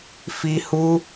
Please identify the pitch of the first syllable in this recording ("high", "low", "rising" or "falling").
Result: high